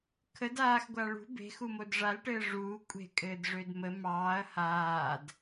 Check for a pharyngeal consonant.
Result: absent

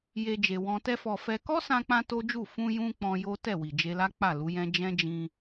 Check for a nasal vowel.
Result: present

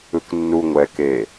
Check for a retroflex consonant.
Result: absent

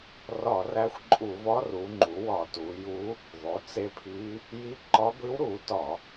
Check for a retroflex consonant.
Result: absent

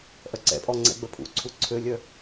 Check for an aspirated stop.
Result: present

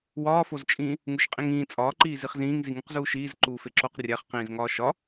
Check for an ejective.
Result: present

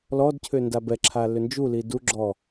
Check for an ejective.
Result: absent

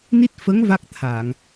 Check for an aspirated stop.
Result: present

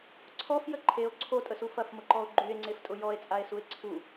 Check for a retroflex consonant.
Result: absent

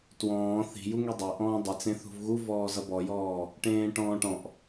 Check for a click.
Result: absent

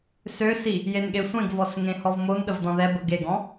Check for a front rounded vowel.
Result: present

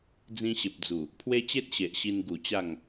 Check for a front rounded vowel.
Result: absent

